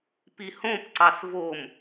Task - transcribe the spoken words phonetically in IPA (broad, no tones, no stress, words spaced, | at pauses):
pihõp ǀɑsvom